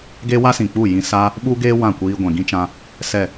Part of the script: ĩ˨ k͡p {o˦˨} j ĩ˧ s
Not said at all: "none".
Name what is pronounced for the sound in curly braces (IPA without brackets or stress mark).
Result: u˦˨